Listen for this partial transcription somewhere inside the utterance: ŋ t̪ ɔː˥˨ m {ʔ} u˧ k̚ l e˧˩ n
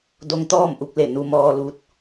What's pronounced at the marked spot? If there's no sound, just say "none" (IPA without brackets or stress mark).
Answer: ʔ